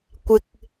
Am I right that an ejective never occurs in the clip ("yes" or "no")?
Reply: yes